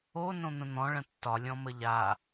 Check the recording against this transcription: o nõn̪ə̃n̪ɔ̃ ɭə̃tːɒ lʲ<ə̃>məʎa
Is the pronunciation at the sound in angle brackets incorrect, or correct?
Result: incorrect